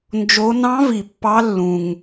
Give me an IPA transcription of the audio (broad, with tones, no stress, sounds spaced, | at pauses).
n d͡ʒ o˧˥ n ɑ̃˧˥ v i˩ pː ɑ˧˥ lː ũ˩ ŋ